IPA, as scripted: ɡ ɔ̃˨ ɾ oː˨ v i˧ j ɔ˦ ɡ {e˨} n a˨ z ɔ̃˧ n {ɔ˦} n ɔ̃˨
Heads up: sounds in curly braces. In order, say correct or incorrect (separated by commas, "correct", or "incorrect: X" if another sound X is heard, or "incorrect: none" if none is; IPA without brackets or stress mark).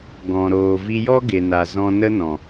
correct, incorrect: ə˦